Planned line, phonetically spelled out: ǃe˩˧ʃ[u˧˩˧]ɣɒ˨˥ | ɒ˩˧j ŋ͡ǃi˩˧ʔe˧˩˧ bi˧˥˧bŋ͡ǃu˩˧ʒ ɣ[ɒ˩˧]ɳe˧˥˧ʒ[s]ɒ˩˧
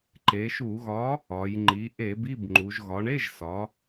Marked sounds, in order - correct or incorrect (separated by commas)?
correct, correct, correct